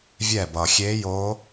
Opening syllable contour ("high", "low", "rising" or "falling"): falling